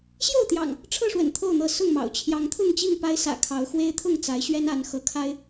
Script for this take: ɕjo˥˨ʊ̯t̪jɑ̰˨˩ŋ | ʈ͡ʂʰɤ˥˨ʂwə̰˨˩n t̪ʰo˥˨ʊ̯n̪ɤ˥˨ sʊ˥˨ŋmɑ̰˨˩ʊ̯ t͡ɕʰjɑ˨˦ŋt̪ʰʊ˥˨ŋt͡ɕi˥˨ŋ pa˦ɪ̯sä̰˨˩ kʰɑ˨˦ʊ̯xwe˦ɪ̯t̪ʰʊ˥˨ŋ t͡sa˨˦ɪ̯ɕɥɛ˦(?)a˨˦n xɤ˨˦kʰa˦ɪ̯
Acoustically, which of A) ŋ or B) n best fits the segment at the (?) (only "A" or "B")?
B